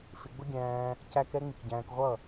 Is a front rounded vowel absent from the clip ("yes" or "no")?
yes